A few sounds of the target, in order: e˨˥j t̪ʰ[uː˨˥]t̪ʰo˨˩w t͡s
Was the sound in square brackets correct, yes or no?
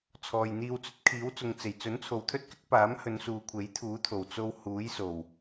yes